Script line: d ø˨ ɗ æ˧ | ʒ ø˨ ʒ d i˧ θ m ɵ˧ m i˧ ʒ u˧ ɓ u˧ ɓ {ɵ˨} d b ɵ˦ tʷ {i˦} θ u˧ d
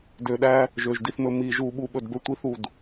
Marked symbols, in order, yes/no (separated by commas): no, yes